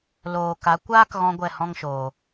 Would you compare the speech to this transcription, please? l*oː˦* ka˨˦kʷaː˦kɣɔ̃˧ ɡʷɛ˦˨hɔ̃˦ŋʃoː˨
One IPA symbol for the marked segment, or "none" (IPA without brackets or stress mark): oː˨